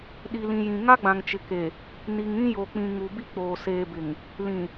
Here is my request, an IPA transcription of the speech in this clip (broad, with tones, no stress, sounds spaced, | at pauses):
ɗ i˨ l ĩ˨ j ĩ˨ ŋ a˦ ɡ͡b ã˨ ŋ t͡ʃ ɪ˨ k e˨ | n i˨ ŋ ĩ˦ j o˨ k͡p ĩ˨ ŋ u˨ b i˦ k͡p oː˨ s eː˨ b ɪ˨ ŋ | l ĩ˨